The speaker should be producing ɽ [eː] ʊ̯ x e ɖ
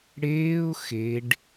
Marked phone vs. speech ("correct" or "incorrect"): correct